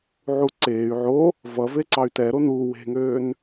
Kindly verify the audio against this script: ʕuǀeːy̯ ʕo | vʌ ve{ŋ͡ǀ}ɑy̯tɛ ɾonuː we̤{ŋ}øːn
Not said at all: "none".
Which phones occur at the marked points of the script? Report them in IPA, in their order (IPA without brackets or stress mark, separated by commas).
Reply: ǀ, ŋ